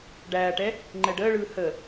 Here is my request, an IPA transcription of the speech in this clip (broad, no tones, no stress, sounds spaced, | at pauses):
ɖ æː ʈ ɛ | ŋ͡ǃ ɛ ɖ əː ɭ ɯː h ə